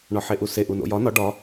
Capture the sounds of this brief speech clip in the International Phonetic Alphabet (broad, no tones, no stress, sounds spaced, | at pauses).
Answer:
ɳ ɒ ħ e ʔ u s e ʔ u n o̰ j ɒ n ɒ ɖ ɒ